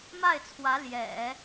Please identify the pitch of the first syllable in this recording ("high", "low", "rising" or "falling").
falling